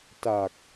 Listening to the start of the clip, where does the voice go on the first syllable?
low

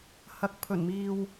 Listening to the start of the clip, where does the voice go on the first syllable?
rising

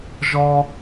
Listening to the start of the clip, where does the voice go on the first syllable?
high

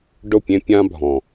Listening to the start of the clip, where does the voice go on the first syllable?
falling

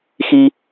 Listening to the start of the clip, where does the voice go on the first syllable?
low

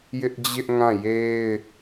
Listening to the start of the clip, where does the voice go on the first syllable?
high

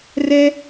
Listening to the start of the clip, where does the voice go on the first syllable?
high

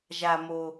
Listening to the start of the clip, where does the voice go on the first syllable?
low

